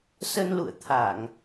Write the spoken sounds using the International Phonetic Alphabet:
s ə˧ n l ṵ˧˨ ə̯ t̪ʰ a˧˩˨ ŋ

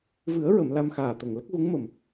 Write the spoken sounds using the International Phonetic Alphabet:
v ɨ˨˩˦ ə̯ ɹ ə˨˩˨ m l a˧ m x aː˨˩ t̪ ə˨˩ ŋ l ə˦˥ k̚ ɣ u˧˥ ŋ m ə˨˩ m

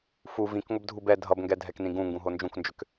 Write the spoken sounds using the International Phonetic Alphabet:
f u v ĩ k ŋʷ ə b dʱ u b ɛ dʱ ʌ b ŋ ɡ ɛ dʱ ɛ k n ĩ ɡ ũ ŋ ɡ ũ ɦ o n d͡ʒ ũ k n d͡ʒ ʏ k

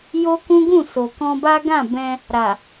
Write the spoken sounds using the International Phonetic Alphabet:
j o˦ k ũ˦ ɡ ũ˦˨ s o˨ k ɔ̃˧ b a˦ ɡ ã˦˨ b ɛ̃˧ | ɾ a˨

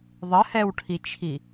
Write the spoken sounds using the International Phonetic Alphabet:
ðˤ ə h ɛ w ʈʰ i t͡ʃʰ i

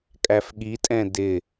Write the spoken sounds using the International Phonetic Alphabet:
kʼ æ f ɠ i tʼ ɛ̃ d ɪ

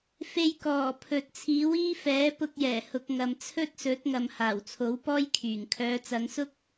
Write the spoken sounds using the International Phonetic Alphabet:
f e˧ j k ɔː˨˩ pʰ ɵ˨ t̚ t͡sʰ iː˨˥ w iː˥ f ɛː˨˥ p ʊ˧ k̚ j ɛː˨˩ h ʊ˨ k̚ ŋ ɐ˨ m t͡sʰ ɵ˥ t̚ s ɵ˨˥ t̚ ŋ ɐ˨ m h aː˨˩ w t͡sʰ o˨˥ w p ɔː˥ j kʰ yː˨˩ ŋ kʰ œː˨˧ t͡s ɐ˨˧ ŋ s ʊ˥ k̚

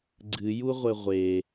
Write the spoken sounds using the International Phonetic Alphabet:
ɡ͡ǀ ɨ j u ʁʷ ɘ ʁʷ e

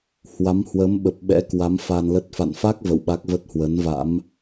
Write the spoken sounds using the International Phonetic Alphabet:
h w a˨˦ m h w əː˨˦ m ɓ ə˨˩ p̚ ɓ ɛ̰˧˥ k w a˨˦ m f a˧ n l ə˦˥ t̚ f a̰˧˨ n f a˦˥ k̚ v ə̰˧˨ w ɓ a˦˥ k̚ v ə˦˥ t̚ h w ə˨˦ n v a̰˧˥ m

